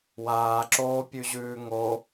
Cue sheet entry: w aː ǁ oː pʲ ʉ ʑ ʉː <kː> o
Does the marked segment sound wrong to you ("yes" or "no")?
yes